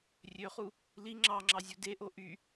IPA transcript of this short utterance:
rʲ ø χ u | l i ŋ͡ǁ ɑ ŋ͡ǁ ɑ zʲ u d e ʔ o ʔ y

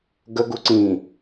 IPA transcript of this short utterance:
ɡ ə ɡ u ǀ ĩ

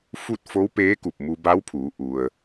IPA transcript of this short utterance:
f u˥˨ t̚ f o˧˥ w p eː˧˥ k u˧˩ p̚ m u˧ b a˧˥ w pʰ uː˩˧ ʔ u˩ ə̯

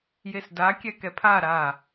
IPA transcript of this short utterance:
j e s d a kʲ ɛ k ɛ pʰ a ɾ aː

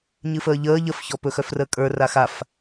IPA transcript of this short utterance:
ɲ ɨ f əː ʎ əː ʎ ə f ç ɔ p ɵ x œ f r əː kʼ ə˞ r a x a f

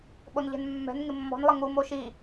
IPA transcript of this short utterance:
ɓ o n ʎ ɛ̤ n mː ɛ̤ n ŋ ɪ mː ɔ̤ n lˠ ɪ ŋ u m o ʃ i

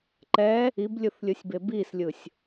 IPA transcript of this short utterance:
ǃ ɛ | i b lʲ ɯ θ lʲ ɯ sʲ b e b i s lʲ ɯ sʲ

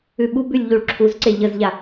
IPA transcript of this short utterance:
ʉ ɓ u b ʉ lʲ ʎ u ɭ ǁʰ u z ǀ e ʎ ə z ʎ a

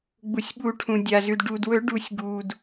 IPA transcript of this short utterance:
ɡ͡b u˩ sʲ ɓ u˨˩˦ ʈʰ ũ˩ dʲ a˩ z ʉ˩ d ɖ u˩ d w ɵ˨˩˦ ɖ u˨˩˦ sʲ ɡ uː˩ d

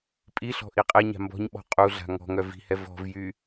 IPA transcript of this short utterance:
pʼ i ɬ ɔ̤ ʔ i qʼ ɛ ɲ a̤ m b ɔ̤ ɲ ɓ ɔ̤ qʼ u ɮ a̤ ŋ ɔ̤ ŋ œ v i̤ h ɛ v ɔ̤ v j y

